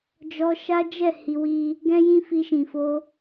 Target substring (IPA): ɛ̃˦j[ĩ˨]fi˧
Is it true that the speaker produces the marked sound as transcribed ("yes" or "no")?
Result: no